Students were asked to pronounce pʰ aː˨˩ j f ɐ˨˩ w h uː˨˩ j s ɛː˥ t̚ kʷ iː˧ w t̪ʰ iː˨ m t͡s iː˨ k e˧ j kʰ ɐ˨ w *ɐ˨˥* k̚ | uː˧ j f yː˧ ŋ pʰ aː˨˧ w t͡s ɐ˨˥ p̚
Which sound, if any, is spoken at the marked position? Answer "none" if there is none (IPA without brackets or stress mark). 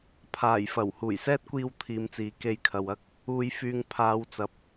ɐ˥